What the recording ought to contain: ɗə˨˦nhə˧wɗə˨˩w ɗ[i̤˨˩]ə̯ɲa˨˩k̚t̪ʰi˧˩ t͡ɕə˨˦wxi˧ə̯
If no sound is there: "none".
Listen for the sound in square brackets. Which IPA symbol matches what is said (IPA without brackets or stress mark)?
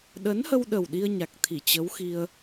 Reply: i˧